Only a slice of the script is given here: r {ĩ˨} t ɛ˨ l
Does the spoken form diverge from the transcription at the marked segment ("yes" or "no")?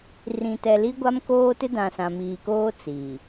no